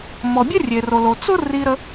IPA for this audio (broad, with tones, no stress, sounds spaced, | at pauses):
m ɔ˩ bʲ ə˥ rʲ e˩ r o˩ l o˩ t͡s ʊ˥ r i˧ ɾ ə˧